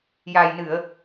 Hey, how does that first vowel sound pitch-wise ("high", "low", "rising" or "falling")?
low